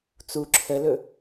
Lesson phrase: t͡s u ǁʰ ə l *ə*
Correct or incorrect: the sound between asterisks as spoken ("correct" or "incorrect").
incorrect